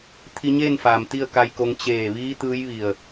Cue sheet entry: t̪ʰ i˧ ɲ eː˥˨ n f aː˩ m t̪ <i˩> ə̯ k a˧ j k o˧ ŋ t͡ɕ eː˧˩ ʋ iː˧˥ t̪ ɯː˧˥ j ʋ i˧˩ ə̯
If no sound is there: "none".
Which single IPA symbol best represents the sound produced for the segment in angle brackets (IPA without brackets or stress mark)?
i˥˨